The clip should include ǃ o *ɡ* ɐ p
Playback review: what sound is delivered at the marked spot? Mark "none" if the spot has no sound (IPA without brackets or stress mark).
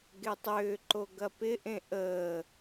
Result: ɡ